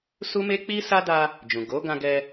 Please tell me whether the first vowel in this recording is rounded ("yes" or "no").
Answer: yes